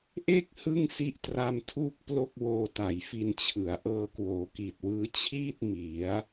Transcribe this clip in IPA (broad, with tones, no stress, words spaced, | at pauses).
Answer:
ʔe˥˩k̚ hɯ˥˩ŋsi˦˥ʔtra˧mtʰuː˥˩k̚ plo˥˩k̚woː˧ ta˨˩jfi˧nt͡ɕʰɯ˩˦a̯ ʔɤː˧kwoː˩˦ki˨˩t̚wɯː˦˥ t͡ɕʰiː˥˩t̚ mi˩˦a̯